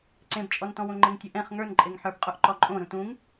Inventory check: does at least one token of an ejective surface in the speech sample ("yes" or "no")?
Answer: yes